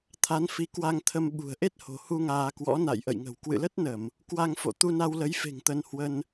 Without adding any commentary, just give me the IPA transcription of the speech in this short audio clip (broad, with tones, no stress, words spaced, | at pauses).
t̪ʰa˨˦nfi˨˦ kwa˧ŋt̪ʰə˧m ɓṳ˨˩ə̯ʔe˦˥t̚ho̤˨˩hu˧ ŋaː˧kwɔ̰˧˥ na̰˧˨jʔə̰˧˨jŋə̤˨˩w kwɨ̰˧˨lə˦˥t̚nə˧˩˨m | kwa˧ŋfo̰˧˨ t̪u˧na˧wlə˨˦jfe̤˨˩ŋ t̪ə˧nhwə˧n